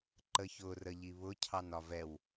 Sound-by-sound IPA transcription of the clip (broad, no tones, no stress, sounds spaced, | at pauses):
ǃ ə ç ʊ r ə ʎ i β ʊ cʰ ɑ n ɒ v ɛ w